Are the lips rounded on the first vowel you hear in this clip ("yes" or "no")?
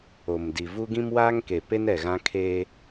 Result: yes